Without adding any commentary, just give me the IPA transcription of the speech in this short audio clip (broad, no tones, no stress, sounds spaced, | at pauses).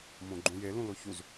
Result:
m õ ɡ͡ǃ ũ j e l ũ l o ç u z